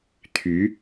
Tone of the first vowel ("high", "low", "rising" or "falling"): rising